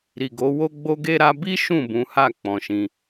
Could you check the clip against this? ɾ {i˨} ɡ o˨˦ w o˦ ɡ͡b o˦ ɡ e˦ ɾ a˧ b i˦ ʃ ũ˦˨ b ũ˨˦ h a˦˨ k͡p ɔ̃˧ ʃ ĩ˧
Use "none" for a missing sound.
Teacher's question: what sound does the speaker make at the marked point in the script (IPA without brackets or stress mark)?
i˨